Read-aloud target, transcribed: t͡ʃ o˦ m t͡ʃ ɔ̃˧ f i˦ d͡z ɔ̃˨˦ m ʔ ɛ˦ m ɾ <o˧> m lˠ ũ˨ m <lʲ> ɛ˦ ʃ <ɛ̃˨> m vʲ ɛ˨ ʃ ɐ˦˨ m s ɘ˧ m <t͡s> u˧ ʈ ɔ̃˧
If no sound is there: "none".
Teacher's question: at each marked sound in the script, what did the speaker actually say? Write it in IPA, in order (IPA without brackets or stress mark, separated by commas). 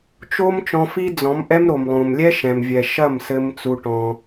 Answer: o˨, lʲ, ɛ̃˨, t͡s